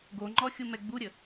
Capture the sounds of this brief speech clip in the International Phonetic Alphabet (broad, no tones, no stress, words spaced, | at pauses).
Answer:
ɡoŋ͡ǃɔxʲumɛ ɡ͡buɾʲə